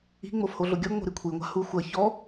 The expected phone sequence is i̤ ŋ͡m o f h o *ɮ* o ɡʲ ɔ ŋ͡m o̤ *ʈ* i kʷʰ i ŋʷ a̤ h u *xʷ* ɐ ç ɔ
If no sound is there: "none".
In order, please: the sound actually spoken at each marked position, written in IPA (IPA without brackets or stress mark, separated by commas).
ɮ, ɾ, xʷ